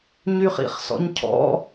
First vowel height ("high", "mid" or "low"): high